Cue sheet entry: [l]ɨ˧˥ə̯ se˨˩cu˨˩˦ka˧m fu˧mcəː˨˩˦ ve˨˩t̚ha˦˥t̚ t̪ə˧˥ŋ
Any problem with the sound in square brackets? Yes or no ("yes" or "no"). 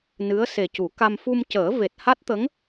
yes